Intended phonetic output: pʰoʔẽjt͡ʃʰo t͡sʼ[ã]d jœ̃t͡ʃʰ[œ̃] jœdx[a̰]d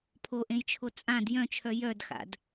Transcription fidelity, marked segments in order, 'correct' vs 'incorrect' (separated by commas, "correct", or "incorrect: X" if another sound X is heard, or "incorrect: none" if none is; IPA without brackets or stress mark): correct, incorrect: œ, correct